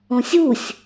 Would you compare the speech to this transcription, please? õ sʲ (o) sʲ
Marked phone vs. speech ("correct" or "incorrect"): incorrect